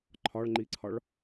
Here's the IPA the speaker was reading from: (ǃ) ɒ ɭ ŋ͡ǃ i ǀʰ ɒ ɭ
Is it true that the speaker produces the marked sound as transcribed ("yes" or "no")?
no